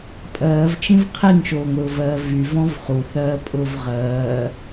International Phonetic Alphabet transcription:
pʼɜːvt͡ʃĩv qʰiŋʃoːŋɾʊːvɜː vyvɔ̃v χuθɜːpʼʊːv ʁɜː

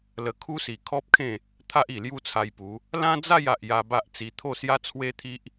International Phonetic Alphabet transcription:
lə˧kʰu˦si˨˩ kʰɔ˦p̚kʰẽ˥˧ | t̪ʰa˦ʔi˨˩ lju˥˧t͡sʰa˧jpu˨˦ | lã˦d͡za˥˧j a˨ʔja˧ ba˦ʔt͡si˧ t̪ʰo˥˧sja˦t͡sʰwe˦t̪ʰi˦ʔ

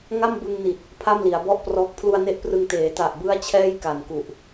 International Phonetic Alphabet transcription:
ŋa˥˩mbɯ˧ŋni˨˩t̚ | pʰa˥˩mli˩˦a̯bɔ˥˩ʔprɔː˦˥k̚ pʰlu˧a̯ne˦˥ʔprɯ˧ŋ teː˩˦ta˨˩ʔbɯ˦˥a̯ t͡ɕʰɛː˥˩jka˨˩nku˨˩ʔ

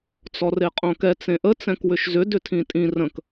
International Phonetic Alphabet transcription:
t͡sɔreqʼõkɛ t͡sẽʔə t͡sɛ̃kwʏʃzʏ dʏtʰĩtʼĩ rə̃k

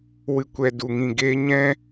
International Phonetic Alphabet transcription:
wɨ˨kʷɛ˨ du˨ŋĩ˨ɡeː˧ ɲɛ̃˦

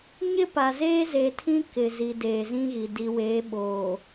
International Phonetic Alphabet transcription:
ɲɪ˦pa˨ zeː˦ze˨tʰĩ˦ kɪ˨zi˨ deː˨zĩ˦ɣi˨ di˨weː˨˦ ɓoː˨

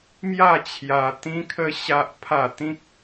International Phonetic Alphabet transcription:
mja˥˧t͡ɕʰja˧ t̪ĩ˦kʰə˦ ɕa˦ʔ pʰa˥˧ t̪ĩ˦k̚

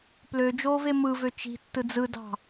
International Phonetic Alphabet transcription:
plød͡ʒoːve mɯvø t͡ʃi̤tːɯ d͡zɯdɑ̤

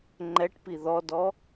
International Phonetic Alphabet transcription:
ŋ͡ǃɛʈpi ðɔdɔ

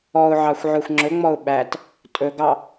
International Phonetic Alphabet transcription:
ɔʊ̯ʕɑxʷʕɵxʷ ŋ͡ǁɵŋ͡mɔʊ̯ ɓæt | tʼɵɡɑ

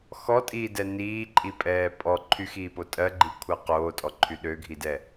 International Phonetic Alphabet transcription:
xɔtʼiːdɛ niːǃʼipʼɛː pʼɔ ǃʰyxiːpo tʼɜɡ͡ǃikʷʰɜ qoːtʼɔǃʰy ɗøɡʱidɛ

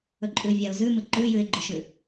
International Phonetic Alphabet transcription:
ɵǃʼʉ vʲaʊ̯zʉmɨ ǃʉ jʉɪ̯ɡ͡ǃɵʃʉ

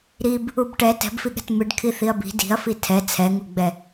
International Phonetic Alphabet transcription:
ɾib | ubʈɛ tɛ̤bfiɠɛ̤t mɨɖ kʰiθiɐ̯bi̤ di̤ɐ̯fi tʰɛ t͡sʰɛŋuɡ͡bɛ

